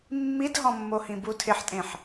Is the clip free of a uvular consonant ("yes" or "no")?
yes